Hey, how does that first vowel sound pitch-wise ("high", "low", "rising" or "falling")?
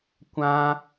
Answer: high